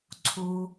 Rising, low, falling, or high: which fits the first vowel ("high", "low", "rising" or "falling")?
low